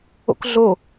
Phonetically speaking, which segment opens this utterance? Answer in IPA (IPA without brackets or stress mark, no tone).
o̰